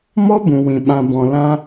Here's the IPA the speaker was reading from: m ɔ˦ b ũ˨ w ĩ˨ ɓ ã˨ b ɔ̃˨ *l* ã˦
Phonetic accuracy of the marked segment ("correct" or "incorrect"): correct